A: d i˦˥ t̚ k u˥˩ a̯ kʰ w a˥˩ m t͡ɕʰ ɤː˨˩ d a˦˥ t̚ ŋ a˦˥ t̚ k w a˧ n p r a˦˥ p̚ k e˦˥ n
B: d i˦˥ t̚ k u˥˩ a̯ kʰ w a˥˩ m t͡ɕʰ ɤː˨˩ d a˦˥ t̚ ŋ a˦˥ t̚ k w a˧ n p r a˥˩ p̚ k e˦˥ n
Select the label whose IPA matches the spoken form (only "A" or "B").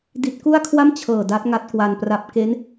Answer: A